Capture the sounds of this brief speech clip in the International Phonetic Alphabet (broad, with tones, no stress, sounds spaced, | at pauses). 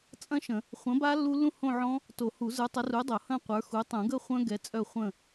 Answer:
t͡sʼ ɐ̃˦˥ ʃ ə̃˨˩˦ | χʷ ɐ̃˨˥ b a˦˥ lː u˦˥ lː ũ˥˧ h õ˥˧ ʕ ɔ̃˦˥ | t o˨˩˦ h u˨˩˦ z ə˞˨˥ tˤ ɐ˨˥ r u˨˥ dˤ o˨˩˦ h ɐ̃˥˧ qʷ ə˞˨˥ x u˨˥ tˤ ũ˨˩˦ ɡ ə˥˧ χʷ œ̃˦˥ ɡ ɛ˨˥ t͡sʼ œ˥˧ χʷ ə̃˥˧